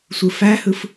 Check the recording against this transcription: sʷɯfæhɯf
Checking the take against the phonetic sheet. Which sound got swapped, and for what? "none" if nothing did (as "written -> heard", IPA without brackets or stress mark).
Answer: none